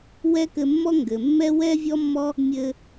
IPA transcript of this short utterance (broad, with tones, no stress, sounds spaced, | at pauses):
w ɛ˦ k ɘ˧ mː ɔ˦ ŋ ɡ ɘ˨ mː ɛ˦ w ɛ˦ vʲ ɔ˦ mː ɔ˦ | mʲ ɘ˧